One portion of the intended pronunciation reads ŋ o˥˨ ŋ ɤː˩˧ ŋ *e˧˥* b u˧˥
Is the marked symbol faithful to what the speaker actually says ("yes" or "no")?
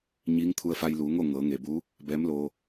no